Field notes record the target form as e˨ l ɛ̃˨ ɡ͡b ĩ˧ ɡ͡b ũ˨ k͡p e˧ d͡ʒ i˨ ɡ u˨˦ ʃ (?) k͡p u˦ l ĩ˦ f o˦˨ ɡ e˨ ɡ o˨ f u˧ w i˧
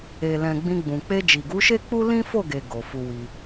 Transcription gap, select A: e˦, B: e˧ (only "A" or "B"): A